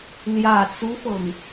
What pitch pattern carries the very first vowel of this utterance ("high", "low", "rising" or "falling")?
low